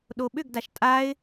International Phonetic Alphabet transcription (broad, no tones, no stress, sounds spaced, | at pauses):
ɗ o ɓ ʏ ɡ d a ʃ tʼ a ɪ̯